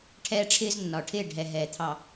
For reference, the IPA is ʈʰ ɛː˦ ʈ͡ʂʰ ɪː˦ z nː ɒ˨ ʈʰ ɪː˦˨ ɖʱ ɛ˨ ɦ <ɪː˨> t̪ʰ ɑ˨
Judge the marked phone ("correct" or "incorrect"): incorrect